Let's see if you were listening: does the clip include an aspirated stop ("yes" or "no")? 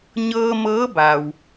no